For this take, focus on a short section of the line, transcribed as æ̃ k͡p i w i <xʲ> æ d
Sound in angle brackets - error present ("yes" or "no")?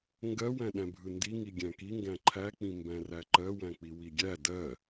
yes